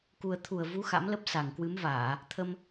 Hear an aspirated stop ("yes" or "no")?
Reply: yes